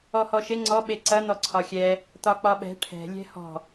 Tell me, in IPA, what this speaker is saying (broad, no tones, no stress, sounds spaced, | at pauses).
ɔ h ɔ ʃ e ŋ͡ǀ ɔ ɓ e ǀ ɐ n̪ ɔ ǀʰ ɒ xʲ ɛ | t̪ ɒ k͡p ɒ ɓ ɛ̤ ʈʰ ɛ̤ lʲ ɛ̤ h ɔ̤